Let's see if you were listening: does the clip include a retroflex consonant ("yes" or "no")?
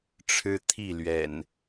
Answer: yes